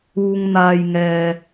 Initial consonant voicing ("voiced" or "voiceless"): voiced